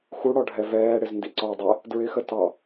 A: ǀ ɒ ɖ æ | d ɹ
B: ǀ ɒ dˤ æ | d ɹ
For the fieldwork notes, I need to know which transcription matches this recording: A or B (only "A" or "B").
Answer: B